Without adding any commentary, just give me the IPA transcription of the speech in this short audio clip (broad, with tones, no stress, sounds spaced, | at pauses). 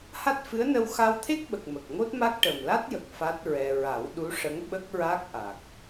h a˦˥ t̚ f ɨ˧˥ ə̯ n ə˧ w x a˧ w t̪ʰ e˦˥ k̚ ɓ ə˨˩ k̚ m ə˨˩ k̚ ŋ o˦˥ t̚ m a˦˥ k̚ ʈ ə˨˩ m l a˦˥ t̚ j ə˨˩ k̚ f a˦˥ t̚ ɹ ɛ˧ ɹ a˨˩˦ w ɗ u˧˥ ʂ ə˧˥ ŋ ɓ ə˦˥ k̚ ɹ a˦˥ k̚ ʔ a˨˩ k̚